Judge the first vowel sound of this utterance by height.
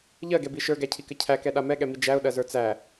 mid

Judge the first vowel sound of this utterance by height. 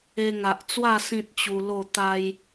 mid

